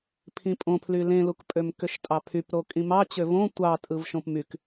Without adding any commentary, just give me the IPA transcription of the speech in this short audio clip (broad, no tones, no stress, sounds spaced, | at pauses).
pʰ ĩ pʼ õ pʰ l y l ẽ l u k pʼ ø m k ø ʃ tʼ ɑ pʰ y p ɾ o kʼ ĩ m ɑ t͡ɕ ø v õ tʷ ɑ tʼ ɯ v ʃ õ p m y k